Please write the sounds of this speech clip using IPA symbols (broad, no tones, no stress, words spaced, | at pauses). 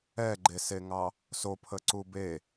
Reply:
ɛɡ͡ǃeseŋɑ | sopʰəǀu be